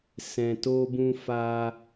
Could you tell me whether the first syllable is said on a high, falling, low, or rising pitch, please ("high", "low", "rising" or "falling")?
low